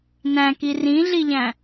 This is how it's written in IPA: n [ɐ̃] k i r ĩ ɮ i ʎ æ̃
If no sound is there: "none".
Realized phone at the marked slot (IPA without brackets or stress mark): æ̃